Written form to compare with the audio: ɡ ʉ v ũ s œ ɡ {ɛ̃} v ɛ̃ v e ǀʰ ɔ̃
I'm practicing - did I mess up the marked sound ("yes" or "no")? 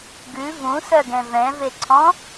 no